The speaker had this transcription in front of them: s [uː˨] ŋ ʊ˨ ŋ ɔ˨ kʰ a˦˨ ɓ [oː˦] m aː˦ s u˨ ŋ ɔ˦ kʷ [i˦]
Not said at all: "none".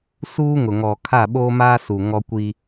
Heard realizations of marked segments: uː˦, oː˦, i˦

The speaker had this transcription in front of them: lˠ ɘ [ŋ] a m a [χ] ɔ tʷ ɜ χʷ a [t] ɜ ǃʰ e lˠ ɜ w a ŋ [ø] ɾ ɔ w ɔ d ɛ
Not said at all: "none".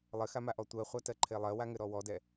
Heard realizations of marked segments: x, ʔ, t, ɘ

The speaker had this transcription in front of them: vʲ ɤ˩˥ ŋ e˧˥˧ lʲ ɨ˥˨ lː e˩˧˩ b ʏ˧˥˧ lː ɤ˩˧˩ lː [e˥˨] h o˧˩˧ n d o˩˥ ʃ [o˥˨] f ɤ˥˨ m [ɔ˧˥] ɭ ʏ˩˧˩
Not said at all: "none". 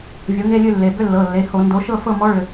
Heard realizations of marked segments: e˩˧˩, ɤ˥˨, ɔ˧˥

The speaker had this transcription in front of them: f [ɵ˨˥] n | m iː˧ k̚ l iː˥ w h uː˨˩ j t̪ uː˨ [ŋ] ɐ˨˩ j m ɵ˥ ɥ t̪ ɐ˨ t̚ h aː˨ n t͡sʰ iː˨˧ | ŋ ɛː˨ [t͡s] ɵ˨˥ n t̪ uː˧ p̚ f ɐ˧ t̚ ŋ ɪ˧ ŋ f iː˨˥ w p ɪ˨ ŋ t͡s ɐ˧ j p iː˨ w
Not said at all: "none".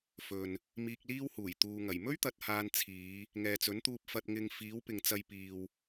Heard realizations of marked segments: ɵ˨, ŋ, t͡s

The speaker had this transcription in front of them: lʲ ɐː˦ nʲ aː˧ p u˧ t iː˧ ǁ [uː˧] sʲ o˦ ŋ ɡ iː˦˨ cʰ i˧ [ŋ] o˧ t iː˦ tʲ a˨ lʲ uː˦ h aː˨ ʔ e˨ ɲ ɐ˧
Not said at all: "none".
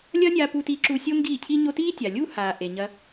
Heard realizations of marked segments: u˧, ɲ

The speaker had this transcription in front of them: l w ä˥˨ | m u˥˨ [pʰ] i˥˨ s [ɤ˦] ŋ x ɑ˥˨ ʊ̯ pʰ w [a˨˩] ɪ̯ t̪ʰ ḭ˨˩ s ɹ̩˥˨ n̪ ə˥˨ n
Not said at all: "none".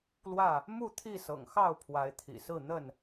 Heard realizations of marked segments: t̪ʰ, ɤ̰˨˩, a˨˦

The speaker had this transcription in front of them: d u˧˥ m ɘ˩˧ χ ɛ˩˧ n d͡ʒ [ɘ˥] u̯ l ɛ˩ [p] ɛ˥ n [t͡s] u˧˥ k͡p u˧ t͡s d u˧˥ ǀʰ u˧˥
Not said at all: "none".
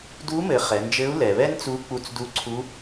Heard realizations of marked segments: ɘ˧˥, β, t͡s

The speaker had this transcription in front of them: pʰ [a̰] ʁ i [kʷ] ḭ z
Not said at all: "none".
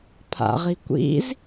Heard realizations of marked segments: a̰, kʷ

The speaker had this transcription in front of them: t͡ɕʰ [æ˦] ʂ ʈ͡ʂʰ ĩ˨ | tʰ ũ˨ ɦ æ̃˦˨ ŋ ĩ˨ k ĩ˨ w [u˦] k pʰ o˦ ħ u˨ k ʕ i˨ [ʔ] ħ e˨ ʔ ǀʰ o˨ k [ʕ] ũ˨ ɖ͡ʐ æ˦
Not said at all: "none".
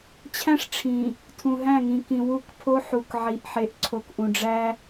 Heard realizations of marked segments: æ̃˦, u˦, ʔ, ʔ

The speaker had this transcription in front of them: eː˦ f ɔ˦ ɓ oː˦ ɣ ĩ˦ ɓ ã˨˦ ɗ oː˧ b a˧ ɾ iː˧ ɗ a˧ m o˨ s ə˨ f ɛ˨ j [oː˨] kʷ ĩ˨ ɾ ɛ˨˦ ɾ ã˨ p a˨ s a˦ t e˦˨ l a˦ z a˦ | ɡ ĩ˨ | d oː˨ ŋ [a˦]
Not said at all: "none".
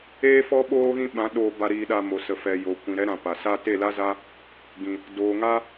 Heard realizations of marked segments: o˨, a˦

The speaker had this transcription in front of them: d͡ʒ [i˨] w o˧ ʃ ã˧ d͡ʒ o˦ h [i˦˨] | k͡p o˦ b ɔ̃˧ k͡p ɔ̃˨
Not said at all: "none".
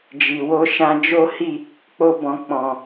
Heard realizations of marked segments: i˨, i˦˨

